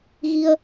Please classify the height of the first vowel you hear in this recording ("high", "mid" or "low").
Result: high